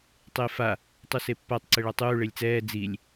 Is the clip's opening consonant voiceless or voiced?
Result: voiceless